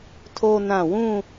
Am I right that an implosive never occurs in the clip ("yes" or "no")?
yes